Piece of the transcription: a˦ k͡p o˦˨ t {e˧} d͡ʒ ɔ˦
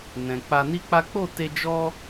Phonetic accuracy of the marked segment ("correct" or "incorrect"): correct